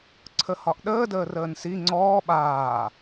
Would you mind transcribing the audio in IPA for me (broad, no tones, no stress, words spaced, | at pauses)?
ǀʰəhɒʔɗəː dəːrəːnsi ŋ͡ǀɔː ɓaː